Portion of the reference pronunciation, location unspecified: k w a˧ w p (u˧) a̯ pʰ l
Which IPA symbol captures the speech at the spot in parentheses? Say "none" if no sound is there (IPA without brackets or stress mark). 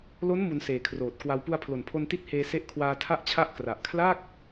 u˧